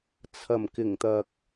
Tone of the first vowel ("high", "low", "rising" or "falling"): low